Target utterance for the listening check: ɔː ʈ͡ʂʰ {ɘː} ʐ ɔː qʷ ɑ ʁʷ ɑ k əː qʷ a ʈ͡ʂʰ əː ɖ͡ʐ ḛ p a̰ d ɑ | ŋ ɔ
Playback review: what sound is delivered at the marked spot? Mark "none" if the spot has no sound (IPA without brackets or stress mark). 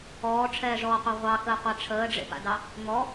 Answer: ɛː